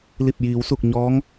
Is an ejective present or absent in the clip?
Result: absent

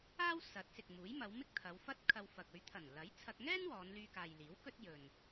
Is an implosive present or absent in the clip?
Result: absent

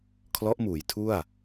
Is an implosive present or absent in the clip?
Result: absent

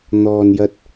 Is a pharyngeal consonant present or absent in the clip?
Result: absent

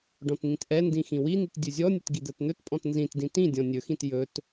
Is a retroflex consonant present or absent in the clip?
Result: present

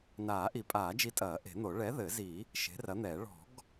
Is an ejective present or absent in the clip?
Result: present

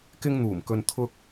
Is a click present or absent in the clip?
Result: absent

